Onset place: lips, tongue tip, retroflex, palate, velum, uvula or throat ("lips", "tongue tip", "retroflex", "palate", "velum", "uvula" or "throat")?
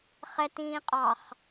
uvula